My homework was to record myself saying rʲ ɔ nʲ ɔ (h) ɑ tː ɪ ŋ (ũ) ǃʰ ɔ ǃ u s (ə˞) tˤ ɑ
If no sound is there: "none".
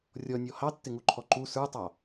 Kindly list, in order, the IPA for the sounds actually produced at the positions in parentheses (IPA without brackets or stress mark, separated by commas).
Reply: h, u, ə˞